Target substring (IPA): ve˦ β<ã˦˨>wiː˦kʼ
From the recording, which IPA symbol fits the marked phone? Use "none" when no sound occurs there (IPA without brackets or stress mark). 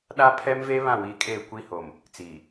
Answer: ã˦˨